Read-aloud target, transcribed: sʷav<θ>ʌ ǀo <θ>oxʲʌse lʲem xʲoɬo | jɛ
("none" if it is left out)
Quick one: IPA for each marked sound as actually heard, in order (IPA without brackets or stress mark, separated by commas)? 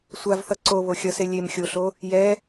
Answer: θ, β